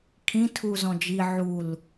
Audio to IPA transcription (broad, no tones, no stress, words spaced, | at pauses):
kʰĩ tʰuzɔ̃d͡ʒi ʕul